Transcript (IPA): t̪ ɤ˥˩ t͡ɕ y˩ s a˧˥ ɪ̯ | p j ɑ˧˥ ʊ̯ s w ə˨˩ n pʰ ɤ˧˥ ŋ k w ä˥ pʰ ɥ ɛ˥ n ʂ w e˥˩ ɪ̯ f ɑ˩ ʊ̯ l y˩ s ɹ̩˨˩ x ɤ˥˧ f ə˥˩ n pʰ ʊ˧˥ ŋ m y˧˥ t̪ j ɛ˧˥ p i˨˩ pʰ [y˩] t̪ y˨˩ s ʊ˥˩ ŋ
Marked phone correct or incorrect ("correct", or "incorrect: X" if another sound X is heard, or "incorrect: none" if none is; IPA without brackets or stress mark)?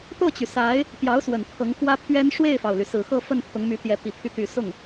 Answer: incorrect: y˧˥